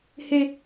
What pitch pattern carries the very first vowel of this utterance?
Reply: high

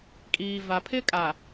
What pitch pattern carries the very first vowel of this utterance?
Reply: low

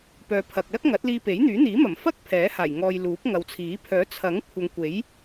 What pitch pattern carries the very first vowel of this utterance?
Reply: low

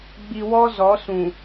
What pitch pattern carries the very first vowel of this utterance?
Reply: low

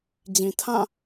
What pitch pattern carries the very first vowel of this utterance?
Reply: low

